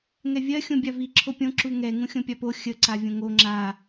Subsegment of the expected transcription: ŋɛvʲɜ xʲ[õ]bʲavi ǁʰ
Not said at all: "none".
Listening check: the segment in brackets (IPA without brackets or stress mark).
õ